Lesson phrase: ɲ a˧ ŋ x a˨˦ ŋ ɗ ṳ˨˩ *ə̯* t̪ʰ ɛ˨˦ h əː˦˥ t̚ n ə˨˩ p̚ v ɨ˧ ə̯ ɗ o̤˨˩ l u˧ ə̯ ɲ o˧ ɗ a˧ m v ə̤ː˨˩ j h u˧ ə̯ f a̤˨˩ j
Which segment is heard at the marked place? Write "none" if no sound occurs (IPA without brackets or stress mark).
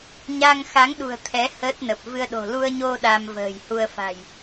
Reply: ə̯